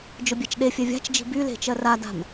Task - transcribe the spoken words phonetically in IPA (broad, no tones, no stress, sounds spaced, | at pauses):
d͡ʒ ʊ bʲ ɛ t͡ʃ ɗ e fʲ ɛ vʲ a̤ t͡ʃ d͡ʒ i̤ b y l e̤ t͡ʃ ɜ r a d a̤ m